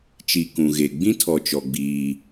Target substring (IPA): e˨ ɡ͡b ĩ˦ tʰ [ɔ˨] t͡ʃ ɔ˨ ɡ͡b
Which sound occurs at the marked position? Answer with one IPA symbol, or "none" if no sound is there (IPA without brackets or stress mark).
ɔ˨